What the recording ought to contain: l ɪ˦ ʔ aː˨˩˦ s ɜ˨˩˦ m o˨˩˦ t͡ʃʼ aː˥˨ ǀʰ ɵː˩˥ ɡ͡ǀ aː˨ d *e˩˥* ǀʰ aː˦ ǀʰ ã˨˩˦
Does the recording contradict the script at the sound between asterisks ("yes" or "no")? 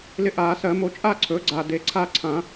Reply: no